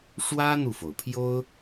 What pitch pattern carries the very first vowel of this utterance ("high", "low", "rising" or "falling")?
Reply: high